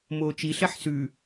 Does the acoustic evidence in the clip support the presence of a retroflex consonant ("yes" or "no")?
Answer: no